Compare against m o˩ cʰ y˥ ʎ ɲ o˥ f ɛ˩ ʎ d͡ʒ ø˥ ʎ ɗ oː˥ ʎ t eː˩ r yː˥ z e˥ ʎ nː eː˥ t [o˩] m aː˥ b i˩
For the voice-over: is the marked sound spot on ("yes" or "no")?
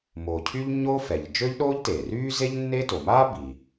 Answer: yes